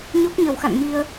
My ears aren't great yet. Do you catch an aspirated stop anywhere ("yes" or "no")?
no